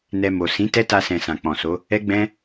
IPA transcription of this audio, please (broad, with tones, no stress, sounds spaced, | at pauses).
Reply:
n ɛ˧ m o˨ s ĩ˨˦ t ɛ˦ t a˧ s ɛ̃˨ s ã˨ k͡p ɔ̃˨ s o˨˦ | ɛ˦ ɡ͡b ɛ̃˦